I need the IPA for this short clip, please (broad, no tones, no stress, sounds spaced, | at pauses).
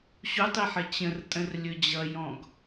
ɕ u tˤ i ħ ə t͡ɕ ə̃ r tʼ ə̃ r lʲ ɵ d͡ʑ ʌ j ɔ̃ ɡ